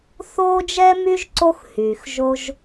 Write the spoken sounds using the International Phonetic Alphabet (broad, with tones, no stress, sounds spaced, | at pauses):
θ oː˥ d͡ʒ ɛ˥ m y˥ ʒ ǀ o˧ x h yː˩ x ʒ o˧ ʒ